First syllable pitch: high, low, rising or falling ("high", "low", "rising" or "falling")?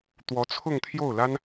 rising